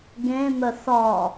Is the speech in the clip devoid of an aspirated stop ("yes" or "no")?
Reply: yes